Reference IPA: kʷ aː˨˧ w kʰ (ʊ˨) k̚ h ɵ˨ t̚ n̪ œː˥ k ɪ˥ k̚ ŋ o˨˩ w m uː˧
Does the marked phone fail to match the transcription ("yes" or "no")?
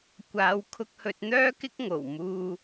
yes